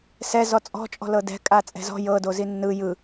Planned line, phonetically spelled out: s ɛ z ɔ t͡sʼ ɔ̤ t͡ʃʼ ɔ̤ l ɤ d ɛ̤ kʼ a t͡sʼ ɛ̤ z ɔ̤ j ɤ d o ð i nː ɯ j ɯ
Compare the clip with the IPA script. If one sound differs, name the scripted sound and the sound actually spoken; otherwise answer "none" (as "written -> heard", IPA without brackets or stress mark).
ð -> z